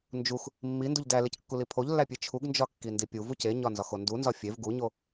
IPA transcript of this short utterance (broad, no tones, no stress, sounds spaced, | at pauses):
n d͡ʒ u x | mː i n d u ʎ d æ l e c kː u l i pʰ o ʎ lː æ pʲ e t͡ʃʰ u ɡ n d͡ʒ ɒ kː i n d i pʲ u v u c e ɲ ɒ n z ɒ x o n d u n z ɒ fʲ e v ɡ u ɲ o